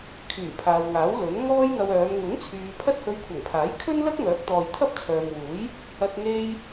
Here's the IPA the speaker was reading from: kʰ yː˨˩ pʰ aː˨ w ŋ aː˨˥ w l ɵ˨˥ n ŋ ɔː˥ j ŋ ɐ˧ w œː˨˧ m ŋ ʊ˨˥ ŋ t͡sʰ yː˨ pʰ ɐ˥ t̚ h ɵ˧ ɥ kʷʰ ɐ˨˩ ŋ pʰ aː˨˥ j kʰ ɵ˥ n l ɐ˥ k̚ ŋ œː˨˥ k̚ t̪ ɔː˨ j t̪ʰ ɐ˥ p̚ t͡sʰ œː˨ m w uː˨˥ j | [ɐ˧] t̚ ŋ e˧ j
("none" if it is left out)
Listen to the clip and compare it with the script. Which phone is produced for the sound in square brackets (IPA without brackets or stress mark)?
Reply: ɐ˧